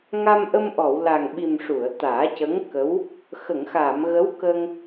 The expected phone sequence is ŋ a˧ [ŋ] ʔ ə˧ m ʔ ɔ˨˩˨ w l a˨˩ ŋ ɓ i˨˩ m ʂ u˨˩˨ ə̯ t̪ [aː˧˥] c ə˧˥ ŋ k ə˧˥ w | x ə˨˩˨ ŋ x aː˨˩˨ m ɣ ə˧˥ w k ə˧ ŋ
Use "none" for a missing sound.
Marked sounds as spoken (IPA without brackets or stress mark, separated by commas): m, aː˨˩˦